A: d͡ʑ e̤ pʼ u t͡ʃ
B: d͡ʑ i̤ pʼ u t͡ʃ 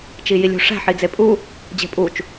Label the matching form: A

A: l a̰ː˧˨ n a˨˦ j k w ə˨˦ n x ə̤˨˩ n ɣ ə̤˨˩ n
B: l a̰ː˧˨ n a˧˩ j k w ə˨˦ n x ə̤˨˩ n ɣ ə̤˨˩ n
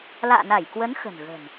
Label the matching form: B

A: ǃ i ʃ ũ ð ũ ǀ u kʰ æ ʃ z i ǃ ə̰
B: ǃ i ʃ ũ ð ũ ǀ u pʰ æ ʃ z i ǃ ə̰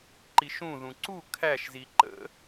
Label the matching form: A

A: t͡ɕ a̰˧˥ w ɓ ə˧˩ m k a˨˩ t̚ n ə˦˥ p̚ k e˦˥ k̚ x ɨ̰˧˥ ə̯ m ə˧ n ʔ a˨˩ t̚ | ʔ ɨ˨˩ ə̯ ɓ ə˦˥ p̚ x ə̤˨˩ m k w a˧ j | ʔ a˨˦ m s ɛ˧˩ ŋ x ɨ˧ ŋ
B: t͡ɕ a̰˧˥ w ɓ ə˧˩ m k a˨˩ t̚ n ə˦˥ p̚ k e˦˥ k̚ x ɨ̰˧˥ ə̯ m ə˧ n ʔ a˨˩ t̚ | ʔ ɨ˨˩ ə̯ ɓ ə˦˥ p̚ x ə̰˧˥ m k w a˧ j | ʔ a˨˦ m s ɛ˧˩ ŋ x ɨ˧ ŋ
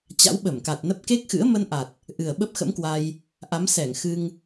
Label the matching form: B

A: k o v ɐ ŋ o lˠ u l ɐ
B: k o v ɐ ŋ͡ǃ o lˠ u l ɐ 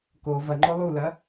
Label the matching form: B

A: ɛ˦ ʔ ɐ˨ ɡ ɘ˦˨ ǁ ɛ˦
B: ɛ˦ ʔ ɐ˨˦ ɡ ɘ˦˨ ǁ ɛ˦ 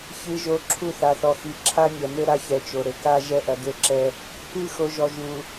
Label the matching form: A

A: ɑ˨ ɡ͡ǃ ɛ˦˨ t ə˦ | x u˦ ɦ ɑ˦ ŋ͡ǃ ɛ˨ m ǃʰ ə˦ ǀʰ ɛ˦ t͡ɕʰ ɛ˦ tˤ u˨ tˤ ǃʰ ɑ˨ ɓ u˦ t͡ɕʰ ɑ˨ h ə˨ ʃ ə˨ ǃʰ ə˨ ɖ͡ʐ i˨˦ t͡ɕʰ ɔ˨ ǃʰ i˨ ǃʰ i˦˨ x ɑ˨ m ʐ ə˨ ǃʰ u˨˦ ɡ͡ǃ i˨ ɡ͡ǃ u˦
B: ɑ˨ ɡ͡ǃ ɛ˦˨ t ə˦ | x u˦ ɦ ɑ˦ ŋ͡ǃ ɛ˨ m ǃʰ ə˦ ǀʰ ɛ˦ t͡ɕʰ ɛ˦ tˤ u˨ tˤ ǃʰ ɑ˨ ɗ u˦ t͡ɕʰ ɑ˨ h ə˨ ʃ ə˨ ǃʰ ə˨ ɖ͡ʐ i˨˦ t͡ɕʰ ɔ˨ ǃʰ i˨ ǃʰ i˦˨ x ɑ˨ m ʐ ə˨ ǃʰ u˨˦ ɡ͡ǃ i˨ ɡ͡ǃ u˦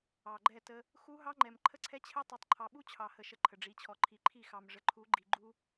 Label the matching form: A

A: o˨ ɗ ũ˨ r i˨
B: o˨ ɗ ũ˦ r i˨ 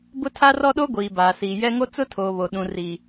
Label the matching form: A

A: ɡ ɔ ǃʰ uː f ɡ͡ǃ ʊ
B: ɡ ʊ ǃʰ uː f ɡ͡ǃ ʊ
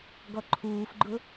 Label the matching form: A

